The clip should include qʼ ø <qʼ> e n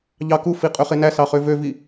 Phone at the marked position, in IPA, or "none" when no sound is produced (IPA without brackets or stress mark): χ